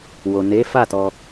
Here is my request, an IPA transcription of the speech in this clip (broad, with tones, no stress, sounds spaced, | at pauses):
w o˨ n e˨˦ f a˦˨ t ɔ˧